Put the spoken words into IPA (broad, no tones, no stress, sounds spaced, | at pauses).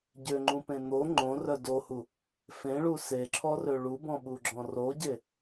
ɟ ø ŋ͡ǃ ũ p ẽ n̪ o ŋ͡ǃ õ r œ d o h u | f ẽ ɭ u s e ǁʰ ɔ r ø ɭ u b ɔ̃ ɓ u ɡ͡ǁ ɔ̃ r o ɟ e